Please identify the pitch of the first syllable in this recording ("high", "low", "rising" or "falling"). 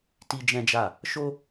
high